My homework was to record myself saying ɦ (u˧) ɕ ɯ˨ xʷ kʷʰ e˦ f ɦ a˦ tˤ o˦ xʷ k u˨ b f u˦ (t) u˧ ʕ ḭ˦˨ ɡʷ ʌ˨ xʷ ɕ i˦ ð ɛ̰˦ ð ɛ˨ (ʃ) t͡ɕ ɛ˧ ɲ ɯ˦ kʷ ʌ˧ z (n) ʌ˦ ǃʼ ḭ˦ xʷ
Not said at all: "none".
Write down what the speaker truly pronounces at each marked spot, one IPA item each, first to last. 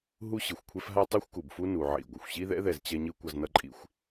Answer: u˦, n, z, n

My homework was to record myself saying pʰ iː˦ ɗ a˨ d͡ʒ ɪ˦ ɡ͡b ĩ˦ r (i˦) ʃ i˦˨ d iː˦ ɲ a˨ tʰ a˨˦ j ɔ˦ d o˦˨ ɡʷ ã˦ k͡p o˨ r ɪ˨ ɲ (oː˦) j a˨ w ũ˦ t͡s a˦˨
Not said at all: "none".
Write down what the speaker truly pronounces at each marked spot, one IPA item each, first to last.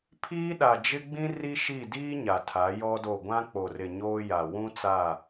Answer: i˦, oː˦

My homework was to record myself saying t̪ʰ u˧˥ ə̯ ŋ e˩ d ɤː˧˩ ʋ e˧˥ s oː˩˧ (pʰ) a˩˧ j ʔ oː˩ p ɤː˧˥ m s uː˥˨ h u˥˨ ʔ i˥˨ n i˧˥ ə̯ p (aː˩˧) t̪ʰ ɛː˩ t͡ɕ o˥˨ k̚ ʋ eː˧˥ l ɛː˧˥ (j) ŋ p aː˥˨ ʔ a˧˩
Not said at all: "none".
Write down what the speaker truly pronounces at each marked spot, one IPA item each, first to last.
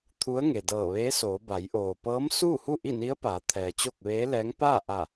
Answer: b, aː˩˧, none

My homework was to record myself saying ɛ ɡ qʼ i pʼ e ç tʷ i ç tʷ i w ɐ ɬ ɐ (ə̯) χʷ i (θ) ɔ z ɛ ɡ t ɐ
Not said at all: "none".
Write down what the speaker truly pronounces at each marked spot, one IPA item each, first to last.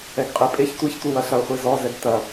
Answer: ʊ̯, z

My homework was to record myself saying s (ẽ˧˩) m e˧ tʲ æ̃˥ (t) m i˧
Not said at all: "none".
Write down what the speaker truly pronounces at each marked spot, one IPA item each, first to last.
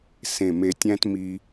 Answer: ẽ˧˩, t

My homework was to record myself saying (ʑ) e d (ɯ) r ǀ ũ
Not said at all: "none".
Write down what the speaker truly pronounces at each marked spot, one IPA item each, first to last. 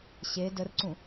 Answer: ɕ, ə

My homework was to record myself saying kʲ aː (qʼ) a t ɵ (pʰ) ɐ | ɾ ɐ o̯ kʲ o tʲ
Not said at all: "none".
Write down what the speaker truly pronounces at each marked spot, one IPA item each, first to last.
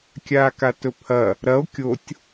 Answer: k, pʰ

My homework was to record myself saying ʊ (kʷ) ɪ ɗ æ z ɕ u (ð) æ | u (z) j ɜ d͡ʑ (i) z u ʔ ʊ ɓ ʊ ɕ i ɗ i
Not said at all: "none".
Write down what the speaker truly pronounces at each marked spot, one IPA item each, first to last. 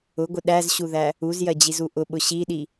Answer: ɡʷ, ð, z, i

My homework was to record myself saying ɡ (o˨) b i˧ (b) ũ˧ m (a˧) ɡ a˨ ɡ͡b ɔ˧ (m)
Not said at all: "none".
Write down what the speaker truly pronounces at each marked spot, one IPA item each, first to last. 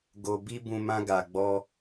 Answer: o˧, b, ã˧, none

